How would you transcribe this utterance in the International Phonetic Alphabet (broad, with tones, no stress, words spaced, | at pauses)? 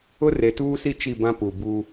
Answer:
ʊ˦re˨tuː˦si˦ t͡ʃi˦˨bã˦pu˨ buː˦